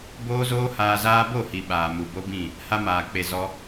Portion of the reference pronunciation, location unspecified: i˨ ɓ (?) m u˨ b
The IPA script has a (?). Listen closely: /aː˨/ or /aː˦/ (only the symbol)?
aː˨